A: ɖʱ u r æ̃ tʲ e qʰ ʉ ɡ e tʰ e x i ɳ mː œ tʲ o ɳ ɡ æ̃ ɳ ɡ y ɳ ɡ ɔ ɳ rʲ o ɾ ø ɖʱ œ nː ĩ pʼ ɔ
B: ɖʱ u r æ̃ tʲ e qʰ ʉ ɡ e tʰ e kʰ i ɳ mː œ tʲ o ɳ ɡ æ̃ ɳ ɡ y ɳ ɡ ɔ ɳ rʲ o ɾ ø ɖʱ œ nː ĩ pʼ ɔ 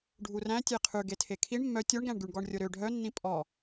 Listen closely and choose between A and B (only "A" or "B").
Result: B